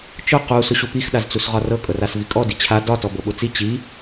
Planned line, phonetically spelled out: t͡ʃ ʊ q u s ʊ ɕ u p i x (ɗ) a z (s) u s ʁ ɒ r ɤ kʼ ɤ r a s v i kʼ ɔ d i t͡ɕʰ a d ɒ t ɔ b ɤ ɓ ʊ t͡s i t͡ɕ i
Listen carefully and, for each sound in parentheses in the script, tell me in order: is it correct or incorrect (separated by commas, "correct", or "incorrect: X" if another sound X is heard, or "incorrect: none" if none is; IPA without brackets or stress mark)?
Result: correct, incorrect: t͡s